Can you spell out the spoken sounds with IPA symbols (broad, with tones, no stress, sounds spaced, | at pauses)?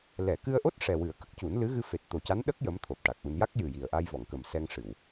l ɛ˨˩˨ k ɨ˧ ə̯ ʔ o˦˥ t̚ ʂ ɛ˨˩ w ɨ˨˩˦ ə̯ k ə˦˥ k̚ c u˨˩˦ n l ɨ˧˥ ɣ ɨ˧ f e˨˩ t̚ t̪ o˨˩ c a˧˥ n ɗ ə˦˥ k̚ j ə˧˥ m t̪ʰ o˨˩ p̚ ʈ a˨˩ k̚ ʔ u˧ n j a˦˥ k̚ j ɨ˨˩ j i˨˩ ə̯ ʔ a˧ j v ɔ˨˩˨ ŋ k ə˨˩ m s ɛ˧ ŋ ʂ ɨ˨˩˨ w